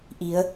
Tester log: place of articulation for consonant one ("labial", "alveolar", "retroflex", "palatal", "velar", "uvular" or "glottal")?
glottal